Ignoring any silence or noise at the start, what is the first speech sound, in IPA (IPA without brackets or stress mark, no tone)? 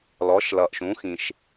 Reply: l